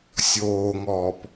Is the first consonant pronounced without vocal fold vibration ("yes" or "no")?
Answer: yes